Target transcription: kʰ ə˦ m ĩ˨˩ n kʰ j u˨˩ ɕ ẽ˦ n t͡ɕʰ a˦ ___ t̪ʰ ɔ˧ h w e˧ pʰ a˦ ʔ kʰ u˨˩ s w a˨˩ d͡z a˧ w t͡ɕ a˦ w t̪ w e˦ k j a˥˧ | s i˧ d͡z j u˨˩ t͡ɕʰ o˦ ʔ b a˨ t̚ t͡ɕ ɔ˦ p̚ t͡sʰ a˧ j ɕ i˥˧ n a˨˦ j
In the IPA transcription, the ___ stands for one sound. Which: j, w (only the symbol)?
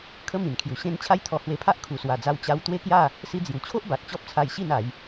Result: j